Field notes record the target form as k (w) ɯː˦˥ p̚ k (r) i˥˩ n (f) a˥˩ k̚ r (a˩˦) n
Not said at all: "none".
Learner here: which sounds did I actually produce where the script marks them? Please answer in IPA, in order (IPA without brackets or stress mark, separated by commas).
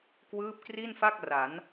w, r, f, a˩˦